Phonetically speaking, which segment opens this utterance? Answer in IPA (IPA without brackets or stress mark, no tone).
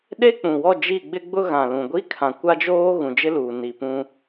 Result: ɗ